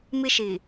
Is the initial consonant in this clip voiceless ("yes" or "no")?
no